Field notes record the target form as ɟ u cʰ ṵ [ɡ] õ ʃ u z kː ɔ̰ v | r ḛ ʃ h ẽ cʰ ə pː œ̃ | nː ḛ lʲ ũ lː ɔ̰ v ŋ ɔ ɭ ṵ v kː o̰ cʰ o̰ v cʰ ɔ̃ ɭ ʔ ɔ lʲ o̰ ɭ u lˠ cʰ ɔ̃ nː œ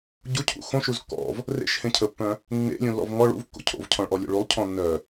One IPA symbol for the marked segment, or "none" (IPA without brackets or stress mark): x